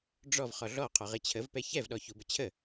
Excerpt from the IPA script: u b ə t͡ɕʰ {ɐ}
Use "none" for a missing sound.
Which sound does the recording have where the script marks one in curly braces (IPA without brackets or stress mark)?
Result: ə